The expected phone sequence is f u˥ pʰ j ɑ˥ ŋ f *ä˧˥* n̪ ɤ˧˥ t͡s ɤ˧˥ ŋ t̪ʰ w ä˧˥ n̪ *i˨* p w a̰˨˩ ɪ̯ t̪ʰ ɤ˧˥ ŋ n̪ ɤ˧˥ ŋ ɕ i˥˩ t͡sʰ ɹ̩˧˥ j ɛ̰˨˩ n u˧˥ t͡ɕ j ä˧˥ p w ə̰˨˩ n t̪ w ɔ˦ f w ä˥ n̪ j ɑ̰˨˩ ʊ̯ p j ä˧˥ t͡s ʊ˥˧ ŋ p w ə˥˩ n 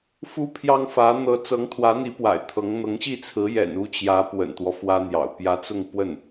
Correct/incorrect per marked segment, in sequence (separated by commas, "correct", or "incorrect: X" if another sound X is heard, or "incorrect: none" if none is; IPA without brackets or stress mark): correct, incorrect: i˧˥